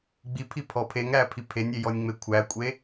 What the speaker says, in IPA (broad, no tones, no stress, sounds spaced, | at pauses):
ɡ͡b i pʰ i pʰ ɔ pʰ e ŋ ɾ æ pʰ i pʰ e nʲ e j ɔ nʲ ŋ͡m e kʷʰ æ kʷʼ e